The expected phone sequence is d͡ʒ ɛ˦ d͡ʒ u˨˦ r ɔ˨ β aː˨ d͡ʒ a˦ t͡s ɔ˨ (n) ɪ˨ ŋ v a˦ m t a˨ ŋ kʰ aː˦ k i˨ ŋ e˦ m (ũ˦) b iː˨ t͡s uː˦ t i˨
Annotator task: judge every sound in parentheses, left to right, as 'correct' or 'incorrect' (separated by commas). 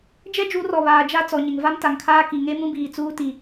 incorrect, correct